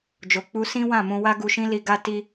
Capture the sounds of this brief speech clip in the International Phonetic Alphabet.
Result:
d͡ʒo˨ k͡pu˧sĩ˦ wã˦˨mũ˧wa˦ ɡu˧ʃĩ˦li˧ ɡa˦ ti˧

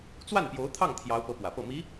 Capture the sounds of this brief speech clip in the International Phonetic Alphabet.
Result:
t͡swa˥˩npjo˧˥ʊ̯t̪ʰɑ˥˩ŋ t̪ʰjɑ˧˥ʊ̯pɤ˧˥ pwä˨˩pɤ˥˩ mi˧˥

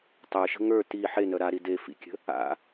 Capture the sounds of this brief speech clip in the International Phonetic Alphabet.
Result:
tˤə˞ʃə̤ ŋə˞ ti ħenœ ɾaɾi de fḭkʲə̤ | a̰

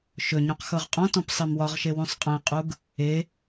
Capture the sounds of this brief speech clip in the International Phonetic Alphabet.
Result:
ʃɵɲũq xɤʁqʼɔ̃tɔ̃p sˤemwɒʁʃe wũsˤqʼẽqʼuɡ | e

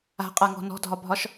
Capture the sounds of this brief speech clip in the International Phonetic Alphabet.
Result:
a̤qʼaŋɔ̤ nɔ̤dʱɒbʱɒʃ

